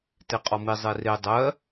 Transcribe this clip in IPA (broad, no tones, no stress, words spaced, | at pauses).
teqʼɔmi zˤere dˤɜ